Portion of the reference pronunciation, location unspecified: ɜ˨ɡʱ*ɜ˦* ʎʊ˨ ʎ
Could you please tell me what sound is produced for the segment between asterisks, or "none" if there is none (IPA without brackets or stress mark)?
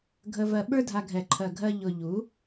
ɜ˧